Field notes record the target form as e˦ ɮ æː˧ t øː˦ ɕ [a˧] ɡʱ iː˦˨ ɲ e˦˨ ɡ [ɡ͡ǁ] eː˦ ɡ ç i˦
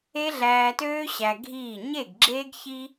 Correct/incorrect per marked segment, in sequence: incorrect: æ˧, correct

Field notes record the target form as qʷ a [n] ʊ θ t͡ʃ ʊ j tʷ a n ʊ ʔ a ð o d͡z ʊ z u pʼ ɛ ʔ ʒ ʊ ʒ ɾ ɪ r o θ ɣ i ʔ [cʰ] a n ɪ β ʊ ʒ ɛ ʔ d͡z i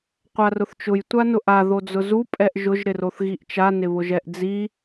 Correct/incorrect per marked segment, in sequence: incorrect: r, incorrect: t͡ʃ

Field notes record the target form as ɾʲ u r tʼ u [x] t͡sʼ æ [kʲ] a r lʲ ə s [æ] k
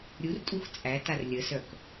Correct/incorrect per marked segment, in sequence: correct, incorrect: t, incorrect: œ

